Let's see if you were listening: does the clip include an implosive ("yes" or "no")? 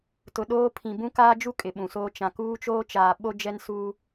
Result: yes